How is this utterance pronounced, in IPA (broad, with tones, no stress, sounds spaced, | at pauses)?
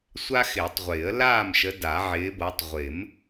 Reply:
sʷ a˦ x ɪː˨˩˦ tˤ ʁʷ ɪː˨˩˦ ə̯ l aː˥˨ m ʃ ə˨˦ d a˨˩˦ ʕ ɪː˨˦ b ɤ˨˦ tˤ ʁʷ ɪ˨˩˦ m